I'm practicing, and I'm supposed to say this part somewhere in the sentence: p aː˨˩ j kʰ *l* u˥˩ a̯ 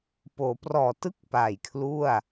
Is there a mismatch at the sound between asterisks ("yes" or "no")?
no